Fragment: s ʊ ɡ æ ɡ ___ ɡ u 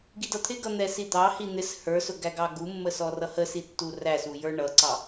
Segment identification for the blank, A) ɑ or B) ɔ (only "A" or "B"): A